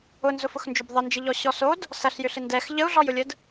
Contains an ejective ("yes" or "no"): no